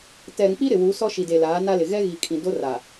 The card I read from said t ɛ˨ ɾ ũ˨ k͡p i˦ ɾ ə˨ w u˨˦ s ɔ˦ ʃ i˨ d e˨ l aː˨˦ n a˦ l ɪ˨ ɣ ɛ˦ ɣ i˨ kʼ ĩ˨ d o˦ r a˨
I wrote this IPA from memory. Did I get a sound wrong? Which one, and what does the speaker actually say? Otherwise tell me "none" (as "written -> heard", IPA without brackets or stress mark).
ə˨ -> ɪ˨